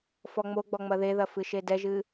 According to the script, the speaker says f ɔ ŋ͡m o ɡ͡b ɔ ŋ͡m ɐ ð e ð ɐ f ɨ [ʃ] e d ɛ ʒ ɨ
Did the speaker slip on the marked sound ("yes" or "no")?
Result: no